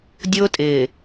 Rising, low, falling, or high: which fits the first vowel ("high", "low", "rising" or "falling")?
high